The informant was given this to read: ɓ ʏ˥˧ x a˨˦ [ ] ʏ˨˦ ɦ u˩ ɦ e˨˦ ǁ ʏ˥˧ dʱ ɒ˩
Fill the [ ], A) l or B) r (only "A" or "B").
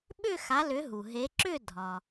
A